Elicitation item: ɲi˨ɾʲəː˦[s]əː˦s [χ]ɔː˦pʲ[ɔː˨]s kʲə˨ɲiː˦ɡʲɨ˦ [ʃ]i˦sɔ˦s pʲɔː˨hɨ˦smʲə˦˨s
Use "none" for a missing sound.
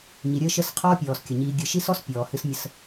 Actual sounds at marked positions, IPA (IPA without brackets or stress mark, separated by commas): ʃ, qʰ, ɔː˨, ʃ